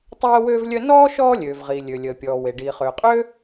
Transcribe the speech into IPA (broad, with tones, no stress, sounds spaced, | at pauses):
tˤ ɛː˥ w øː˥ v lʲ œ˥ n ɔː˥ ʃ ɔː˥ lʲ øː˩ v ʁ iː˩ lʲ ø˩ lʲ əː˩ pʲ ɔː˩ w e˩ ɖ iː˩ χ øː˩ qʼ øː˥